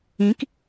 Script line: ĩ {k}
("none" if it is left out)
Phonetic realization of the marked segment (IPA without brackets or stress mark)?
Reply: k